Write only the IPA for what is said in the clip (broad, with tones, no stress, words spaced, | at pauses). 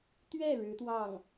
t̪ɥɛ˥˩ ɻɻ̩˧˥t̪wɑ˥˩ŋ